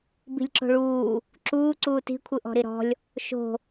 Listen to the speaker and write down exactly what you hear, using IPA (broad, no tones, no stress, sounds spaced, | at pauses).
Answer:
b i̤ lʲ ǁ o̤ ɭ uː | ǁ uː ǀ uː t i̤ kʷʰ ɯ ʔ ɔ̤ ɾ i ɾ ɔ̤ lʲ | ʃ o̤